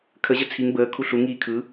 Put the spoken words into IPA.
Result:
kʰ ə ʑ ə t͡sʰ i ŋ b əː kʰ u ɬ u ŋ iː kʰ ɯ

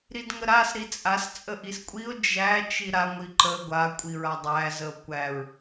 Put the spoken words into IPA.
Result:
ɾ i d ŋ ə ɾ a s ɾ i t͡sʼ a s t͡sʼ ə ʔ i s kʷʼ i o̯ d͡ʒ æ t͡ʃ i ɾ a ŋʷ i ǃ ə ɡʷ a kʷʼ i ɹ a dˤ æ z ə o̯ kʷ æ ɹ

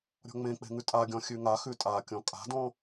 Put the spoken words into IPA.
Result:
ɾʲ ɔ̤ ŋ͡m ẽ k͡p e̤ ŋ ʉ tʼ a ɡʲ ɔ̃ xʲ ʉ ŋ a x ʉ tʼ a kʲ ɔ̃ kʼ a̤ d ɔ̃

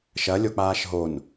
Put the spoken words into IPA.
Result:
ʃ ɐ lʲ o k͡p aː ʃ ɦ o n

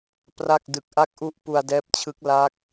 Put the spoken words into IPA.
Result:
p r a˥˩ k̚ d ɯ˨˩ k̚ ʔ a˦˥ k̚ ʔ u˦˥ ʔ p u˧ a̯ d ɛː˦˥ p̚ t͡ɕʰ ɯ˦˥ k̚ l a˦˥ k̚

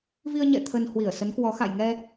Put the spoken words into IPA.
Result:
v i˧ ə̯ ɲ ɛ̰˧˨ t̪ʰ ə˧ n h w i˧˩ ə̯ s ə˨˦ n k w ɔ˨˦ x a̰˧˨ j ŋ ɛ˧

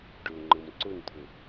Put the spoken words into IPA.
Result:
ɖ ʊː ŋ͡ǃ ɤ m ǀ ʊ n t̪ʰ ʊ

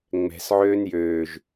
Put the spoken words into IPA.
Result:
ŋ͡m ɛ̤ s ʕ øː n j øː ʒ

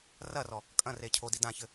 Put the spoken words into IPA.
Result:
r ɐ r ɔ | kʼ ɐ̃ r e cʰ o d i d ã ç ɘ

